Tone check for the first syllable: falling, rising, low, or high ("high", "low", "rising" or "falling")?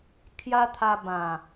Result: high